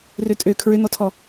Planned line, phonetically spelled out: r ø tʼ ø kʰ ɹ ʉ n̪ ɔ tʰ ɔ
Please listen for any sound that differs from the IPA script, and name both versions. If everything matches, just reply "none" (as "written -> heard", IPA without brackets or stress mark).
ʉ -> ø